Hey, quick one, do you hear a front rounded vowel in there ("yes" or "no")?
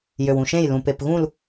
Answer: yes